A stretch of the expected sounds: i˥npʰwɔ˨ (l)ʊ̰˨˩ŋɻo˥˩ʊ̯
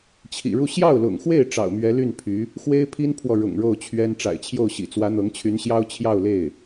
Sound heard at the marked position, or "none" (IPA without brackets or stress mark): ɻ